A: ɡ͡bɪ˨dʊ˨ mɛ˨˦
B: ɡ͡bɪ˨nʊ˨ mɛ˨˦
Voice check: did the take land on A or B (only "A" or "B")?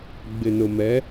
B